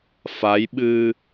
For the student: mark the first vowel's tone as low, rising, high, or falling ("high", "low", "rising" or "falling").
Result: rising